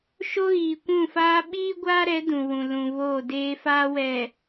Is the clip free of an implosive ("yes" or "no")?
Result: no